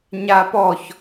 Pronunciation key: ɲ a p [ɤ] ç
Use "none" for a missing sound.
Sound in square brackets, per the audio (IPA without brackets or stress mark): ɔ